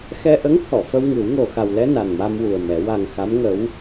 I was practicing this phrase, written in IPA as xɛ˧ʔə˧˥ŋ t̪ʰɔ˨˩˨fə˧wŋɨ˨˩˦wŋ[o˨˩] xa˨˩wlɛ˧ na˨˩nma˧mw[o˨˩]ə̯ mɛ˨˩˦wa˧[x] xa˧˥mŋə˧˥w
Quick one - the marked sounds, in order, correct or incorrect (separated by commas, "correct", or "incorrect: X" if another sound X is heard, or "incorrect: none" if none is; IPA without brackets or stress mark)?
correct, incorrect: u˨˩, incorrect: ŋ